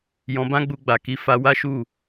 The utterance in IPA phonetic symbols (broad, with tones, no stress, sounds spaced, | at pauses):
j ɔ̃˧ b ã˦ ɡ͡b u˧ ɡ͡b a˨ k i˨˦ f a˧ w a˦ ʃ u˦˨